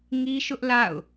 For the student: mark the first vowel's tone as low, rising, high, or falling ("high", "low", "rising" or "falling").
high